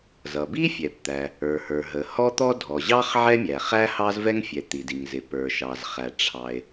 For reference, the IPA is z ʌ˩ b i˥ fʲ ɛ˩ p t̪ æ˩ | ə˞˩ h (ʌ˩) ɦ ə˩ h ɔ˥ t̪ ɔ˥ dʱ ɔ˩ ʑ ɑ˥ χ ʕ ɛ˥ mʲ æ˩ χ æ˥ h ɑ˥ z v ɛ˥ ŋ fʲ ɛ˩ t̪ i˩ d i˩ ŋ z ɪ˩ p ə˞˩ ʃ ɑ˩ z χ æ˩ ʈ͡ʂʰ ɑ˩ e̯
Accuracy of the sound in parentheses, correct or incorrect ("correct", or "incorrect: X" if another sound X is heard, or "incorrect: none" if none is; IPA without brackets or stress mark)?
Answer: incorrect: ə˞˩